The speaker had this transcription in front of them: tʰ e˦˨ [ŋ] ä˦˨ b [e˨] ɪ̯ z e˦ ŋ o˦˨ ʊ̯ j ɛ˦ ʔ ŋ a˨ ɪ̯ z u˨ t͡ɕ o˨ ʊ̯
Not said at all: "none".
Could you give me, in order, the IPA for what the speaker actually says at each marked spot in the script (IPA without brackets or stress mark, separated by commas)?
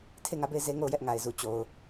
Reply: ŋ, e˦˨